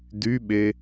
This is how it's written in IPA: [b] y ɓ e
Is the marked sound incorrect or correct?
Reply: incorrect